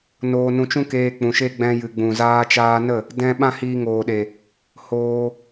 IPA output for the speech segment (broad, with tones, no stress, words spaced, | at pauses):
noː˧nũ˧t͡ʃũ˦keː˧ k͡pũ˨ʃe˦ ɡ͡bɛ̃˧jɨ˨ɡ͡bũ˨ zaː˧t͡ʃaː˧nə˦˨ | dɛ̃˦ ɓã˦hiː˧ŋoː˨ɗe˨ | hoː˧